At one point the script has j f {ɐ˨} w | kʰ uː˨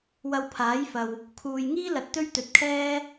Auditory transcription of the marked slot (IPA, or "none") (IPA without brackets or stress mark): ɐ˨